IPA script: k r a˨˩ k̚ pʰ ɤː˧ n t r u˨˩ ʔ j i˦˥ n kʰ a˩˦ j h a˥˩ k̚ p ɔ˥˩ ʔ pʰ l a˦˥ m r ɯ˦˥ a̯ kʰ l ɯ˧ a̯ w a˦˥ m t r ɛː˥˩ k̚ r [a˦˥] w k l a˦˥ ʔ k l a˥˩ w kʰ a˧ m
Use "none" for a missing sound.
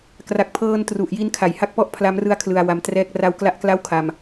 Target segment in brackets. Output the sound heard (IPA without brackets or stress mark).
a˧